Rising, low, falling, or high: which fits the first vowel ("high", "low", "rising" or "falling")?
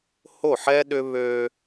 falling